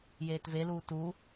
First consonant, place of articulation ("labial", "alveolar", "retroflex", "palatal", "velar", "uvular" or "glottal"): palatal